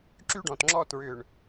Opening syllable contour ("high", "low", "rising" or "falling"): high